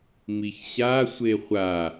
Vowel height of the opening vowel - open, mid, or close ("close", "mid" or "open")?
close